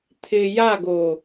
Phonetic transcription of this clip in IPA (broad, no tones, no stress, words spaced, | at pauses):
t̪ʰɪ jaɡo